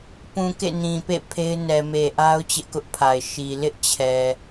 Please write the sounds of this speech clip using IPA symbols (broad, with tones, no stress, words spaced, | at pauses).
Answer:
pũ˨ kḛ˦˨nĩ˨pḛ˦˨ pʰe˦ɪ̯nɛ˨me˨ ʔa˦ʊ̯ t͡ɕɪ˦ʔkʊ˦ʔpʰa˨ɪ̯ ʃi˨ lɪ˦ʔ t͡ɕʰɛ˨